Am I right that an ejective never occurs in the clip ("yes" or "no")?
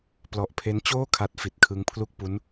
yes